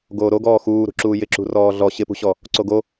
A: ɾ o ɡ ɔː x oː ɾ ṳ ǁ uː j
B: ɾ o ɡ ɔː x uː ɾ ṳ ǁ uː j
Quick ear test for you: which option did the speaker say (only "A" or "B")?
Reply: B